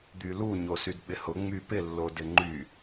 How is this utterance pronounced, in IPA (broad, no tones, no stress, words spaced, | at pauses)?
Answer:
d̪ylu ɲosydɓɪhʊ ŋ͡mypɪ lːodɪŋ͡ǃy